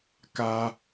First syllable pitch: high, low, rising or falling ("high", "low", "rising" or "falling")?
high